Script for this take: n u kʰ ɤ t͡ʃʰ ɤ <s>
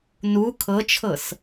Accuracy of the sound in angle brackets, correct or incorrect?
correct